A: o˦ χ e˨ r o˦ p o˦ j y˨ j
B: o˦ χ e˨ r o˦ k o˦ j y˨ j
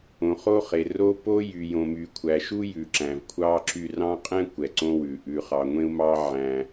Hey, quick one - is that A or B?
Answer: A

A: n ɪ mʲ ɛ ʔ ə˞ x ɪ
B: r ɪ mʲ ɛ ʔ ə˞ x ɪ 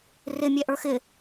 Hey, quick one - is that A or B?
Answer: B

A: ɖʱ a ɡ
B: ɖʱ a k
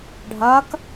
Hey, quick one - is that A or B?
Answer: B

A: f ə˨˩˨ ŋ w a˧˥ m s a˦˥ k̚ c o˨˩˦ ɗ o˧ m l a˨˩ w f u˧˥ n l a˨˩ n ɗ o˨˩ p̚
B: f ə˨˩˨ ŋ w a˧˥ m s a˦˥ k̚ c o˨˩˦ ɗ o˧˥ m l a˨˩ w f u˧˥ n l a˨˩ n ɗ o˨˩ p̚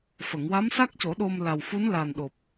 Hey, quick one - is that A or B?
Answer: A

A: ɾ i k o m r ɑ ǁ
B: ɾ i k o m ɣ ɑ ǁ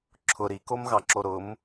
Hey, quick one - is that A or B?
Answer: B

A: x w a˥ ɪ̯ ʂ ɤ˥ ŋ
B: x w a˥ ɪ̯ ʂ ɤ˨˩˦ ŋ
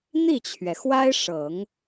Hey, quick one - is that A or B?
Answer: B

